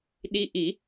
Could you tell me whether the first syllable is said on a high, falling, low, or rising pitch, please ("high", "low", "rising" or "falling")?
rising